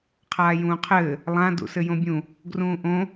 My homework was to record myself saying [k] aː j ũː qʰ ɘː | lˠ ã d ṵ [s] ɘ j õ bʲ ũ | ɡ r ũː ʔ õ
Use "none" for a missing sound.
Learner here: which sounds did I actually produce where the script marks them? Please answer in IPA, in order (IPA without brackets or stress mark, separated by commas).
qʰ, s